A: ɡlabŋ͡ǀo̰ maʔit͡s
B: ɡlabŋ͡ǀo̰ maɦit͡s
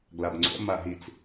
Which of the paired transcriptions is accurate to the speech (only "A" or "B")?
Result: B